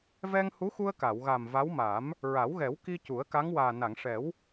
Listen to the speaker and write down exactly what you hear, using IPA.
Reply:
v ɛ˧ ŋ h u˧˥ x u˧ ə̯ k a˨˩˨ w ɣ a˨˩ m v a˧˥ w m a˨˩˦ m | ɹ a˨˩˦ w ɣ ɛ˨˩˦ w k i˧ c u˨˩˦ ə̯ k a˧˥ ŋ w aː˨˩ n a˨˩˨ ŋ ʂ ɛ˨˩˦ w

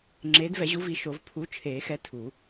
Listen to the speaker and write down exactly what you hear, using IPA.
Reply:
ŋ͡ǁ eː˨˦ d v ɛ˨˩˦ ʑ u˨˦ v i˨˩˦ ʃ o˨˩˦ v pʰ u˨˦ t͡ʃʰ eː˨˩˦ x ɛ˨˦ tʰ u˨˩˦

